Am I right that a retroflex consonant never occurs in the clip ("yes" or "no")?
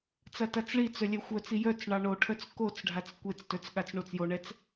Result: no